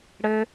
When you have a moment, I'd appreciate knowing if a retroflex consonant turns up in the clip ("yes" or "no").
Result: yes